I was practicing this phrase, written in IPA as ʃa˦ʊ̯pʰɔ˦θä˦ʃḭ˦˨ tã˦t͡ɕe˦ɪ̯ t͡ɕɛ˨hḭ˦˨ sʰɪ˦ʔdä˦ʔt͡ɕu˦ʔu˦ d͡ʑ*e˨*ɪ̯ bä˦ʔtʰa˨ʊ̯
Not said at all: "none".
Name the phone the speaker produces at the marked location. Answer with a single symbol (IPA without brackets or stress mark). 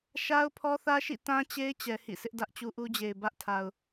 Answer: e˨